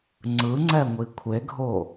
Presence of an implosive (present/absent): absent